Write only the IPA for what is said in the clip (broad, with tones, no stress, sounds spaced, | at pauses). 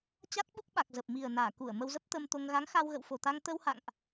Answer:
t͡ɕ a˦˥ t̚ ɓ u˦˥ k̚ ɓ a˨˩ k̚ z ə˨˩ p̚ m i˨˩ ə̯ n aː˧˩ k u˧˩ ə̯ m ə˧ w z ə˦˥ p̚ t̪ ə˧ m t̪ o˧ ŋ ɣ a˨˦ ŋ x a˧ w ɣ ə̰˧˨ w f o˨˩ t̪ a˧ ŋ t̪ ə˧ w h a̰˧˨ ŋ ʔ